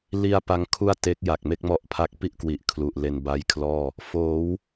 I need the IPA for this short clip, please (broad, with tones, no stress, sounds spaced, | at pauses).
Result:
l i˧ a̯ p a˦˥ ŋ kʰ u˥˩ a̯ t e˦˥ k̚ j a˨˩ k̚ m e˥˩ k̚ m ɔ˦˥ ʔ pʰ a˦˥ k̚ p i˥˩ ʔ k w i˨˩ ʔ kʰ l u˨˩ ʔ l e˧ n b a˦˥ j kʰ l ɔː˥˩ | f oː˩˦ w